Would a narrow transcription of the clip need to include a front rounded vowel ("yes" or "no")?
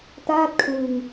no